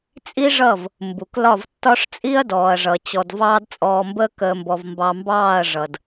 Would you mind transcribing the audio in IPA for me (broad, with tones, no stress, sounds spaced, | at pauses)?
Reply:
t͡sʼ i˦ ʐ ʌ˦˨ v | m b u˨ k l ɒ˦˨ v tː ɒ˦ ʂ t͡sʼ i˦ ɐ̯ d ɔː˨ ɐ̯ ʐ ʌ˨ t͡ɕ ɔ˧ d v ɑː˦ d t͡sʼ ɔː˧ m b əː˦ k əː˧ m b ɔ˧ v m b ɑ˧ m b ɑː˦˨ ɐ̯ ʐ ʌ˨ d